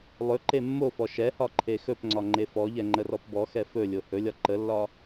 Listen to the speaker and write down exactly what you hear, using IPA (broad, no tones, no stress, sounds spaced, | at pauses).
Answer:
lˠ ɵ ǃ e mː o f ɔ ʃ ɛ h ɒ ǃʰ e x ɵ p ŋ͡ǀ ɒ ŋ͡ǃ e f ɔ ʎ ɛ ŋ͡ǃ ə r ɔ p b ɔ x ɛ f ɵ lʲ o h ɵ lʲ ɒ ǃ ə lː ɒ